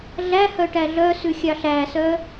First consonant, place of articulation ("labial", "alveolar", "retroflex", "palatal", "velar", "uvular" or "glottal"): alveolar